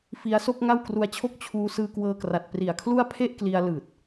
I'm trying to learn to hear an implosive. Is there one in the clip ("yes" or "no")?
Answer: no